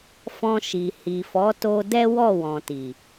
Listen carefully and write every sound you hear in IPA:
fɔ̃˧ʃi˨hi˨ fɔ˨˦to˧ dɛ˦ wɔ˦˨wɔ̃˨ ti˨

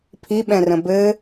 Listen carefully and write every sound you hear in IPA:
pʰiɓɛ̃rə̃ bɘ

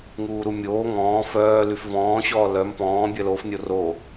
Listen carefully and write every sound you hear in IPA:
ŋuːɾumʲoː ŋɔ̃ː fœː lyfvɔ̃ː ɕɔːlœm pɔ̃ː bʲœlof nʲoro

